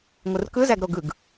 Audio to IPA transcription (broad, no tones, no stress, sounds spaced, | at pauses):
ŋʷ ɯ r k ɯ z æ ɡ ɾ o ɡ ɯ ɡ